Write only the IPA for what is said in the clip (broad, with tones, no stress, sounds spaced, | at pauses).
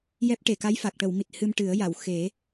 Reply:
j ɛ˦˥ p̚ ʈ e˨˩ k a˧˥ j f a˨˩ k̚ ʈ ə˨˩˨ w m i˨˩ t̚ h ɨ˧ m ʈ ɨ˨˩˦ ə̯ j a˨˩˨ w x e˨˩˦